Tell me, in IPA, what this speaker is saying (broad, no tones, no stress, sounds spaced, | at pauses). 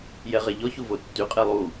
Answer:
j ɛ ʁ ɛ ʎ ɔ ç u v o tː y qʼ e lˠ u